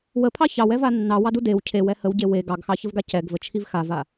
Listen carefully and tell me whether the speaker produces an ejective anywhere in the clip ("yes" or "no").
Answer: no